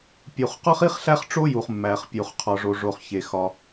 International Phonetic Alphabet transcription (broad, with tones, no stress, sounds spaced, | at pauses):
pʲ u˩ χ q ɒ˥ χ i˥ χ ɬ æ˥ χ ʈ͡ʂ o˥ j u˩ χ mː æ˩ χ pʲ u˩ χ qʰ ɒ˩ ʐ o˩ ʐ o˩ χ ç e˩ x ɒ˩